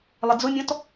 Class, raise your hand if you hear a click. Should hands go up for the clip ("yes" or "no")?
no